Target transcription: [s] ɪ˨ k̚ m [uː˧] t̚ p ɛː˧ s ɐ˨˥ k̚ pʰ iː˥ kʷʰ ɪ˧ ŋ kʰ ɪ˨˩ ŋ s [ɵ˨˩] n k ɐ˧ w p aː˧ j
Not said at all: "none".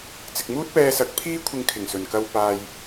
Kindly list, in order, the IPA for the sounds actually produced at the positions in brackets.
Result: t͡s, uː˥, ɵ˨˩

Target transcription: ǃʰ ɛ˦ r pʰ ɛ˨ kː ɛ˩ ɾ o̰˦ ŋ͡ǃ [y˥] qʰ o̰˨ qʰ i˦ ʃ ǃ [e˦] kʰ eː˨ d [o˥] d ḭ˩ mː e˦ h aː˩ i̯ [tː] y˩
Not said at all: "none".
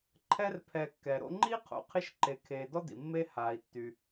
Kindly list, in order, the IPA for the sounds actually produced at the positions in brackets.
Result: i˥, e˨, ɔ˥, tː

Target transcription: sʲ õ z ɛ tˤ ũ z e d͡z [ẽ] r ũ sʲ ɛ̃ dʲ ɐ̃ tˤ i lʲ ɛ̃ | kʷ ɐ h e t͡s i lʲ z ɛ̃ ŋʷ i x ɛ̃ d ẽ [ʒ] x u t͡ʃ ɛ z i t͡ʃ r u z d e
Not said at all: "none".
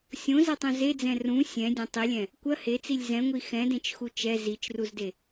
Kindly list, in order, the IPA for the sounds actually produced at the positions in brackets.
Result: ɛ̃, t͡ʃ

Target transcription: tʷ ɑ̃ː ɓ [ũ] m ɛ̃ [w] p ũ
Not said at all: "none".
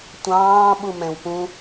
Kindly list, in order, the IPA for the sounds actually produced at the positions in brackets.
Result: u, w

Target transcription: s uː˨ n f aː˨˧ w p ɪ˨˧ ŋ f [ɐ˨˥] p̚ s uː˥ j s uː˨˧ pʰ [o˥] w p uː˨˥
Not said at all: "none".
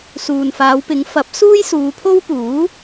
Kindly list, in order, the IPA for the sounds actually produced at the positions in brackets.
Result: ɐ˨˥, o˥

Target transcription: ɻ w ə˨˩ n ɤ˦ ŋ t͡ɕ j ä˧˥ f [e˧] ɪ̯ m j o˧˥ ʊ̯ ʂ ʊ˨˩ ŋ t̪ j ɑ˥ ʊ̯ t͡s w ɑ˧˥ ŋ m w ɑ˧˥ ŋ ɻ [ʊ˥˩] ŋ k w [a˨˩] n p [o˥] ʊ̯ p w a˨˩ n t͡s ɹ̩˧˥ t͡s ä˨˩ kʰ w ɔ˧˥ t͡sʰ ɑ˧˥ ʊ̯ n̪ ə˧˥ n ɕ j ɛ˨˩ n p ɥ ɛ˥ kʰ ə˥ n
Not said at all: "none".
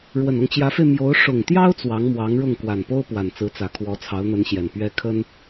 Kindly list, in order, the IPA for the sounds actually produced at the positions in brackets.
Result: e˧, ʊ˥˩, a˨˩, o˥

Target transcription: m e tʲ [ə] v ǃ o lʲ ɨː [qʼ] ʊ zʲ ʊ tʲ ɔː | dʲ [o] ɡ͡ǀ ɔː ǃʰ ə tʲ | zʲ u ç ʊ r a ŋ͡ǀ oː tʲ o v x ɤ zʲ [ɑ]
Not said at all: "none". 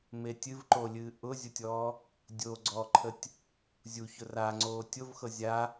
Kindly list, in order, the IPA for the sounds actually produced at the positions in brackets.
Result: ɨ, ʔ, oː, a

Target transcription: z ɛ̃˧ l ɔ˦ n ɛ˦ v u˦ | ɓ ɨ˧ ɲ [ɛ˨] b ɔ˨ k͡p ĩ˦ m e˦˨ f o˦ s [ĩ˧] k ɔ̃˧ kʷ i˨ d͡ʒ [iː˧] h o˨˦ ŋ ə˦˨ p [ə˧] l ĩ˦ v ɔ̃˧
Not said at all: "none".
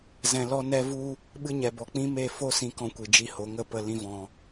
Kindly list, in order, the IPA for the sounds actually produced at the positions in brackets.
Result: ɛ˨, ĩ˧, i˧, ə˧

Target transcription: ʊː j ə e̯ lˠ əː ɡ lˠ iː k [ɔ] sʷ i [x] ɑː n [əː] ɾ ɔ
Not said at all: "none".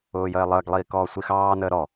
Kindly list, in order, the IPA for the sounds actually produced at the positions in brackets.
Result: ɔː, x, əː

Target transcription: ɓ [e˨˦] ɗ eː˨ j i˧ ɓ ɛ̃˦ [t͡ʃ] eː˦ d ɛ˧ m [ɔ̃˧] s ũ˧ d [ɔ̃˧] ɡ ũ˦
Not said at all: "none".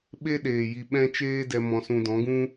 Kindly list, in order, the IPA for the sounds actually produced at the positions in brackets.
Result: e˦, t͡ʃ, ɔ̃˧, ɔ̃˨˦

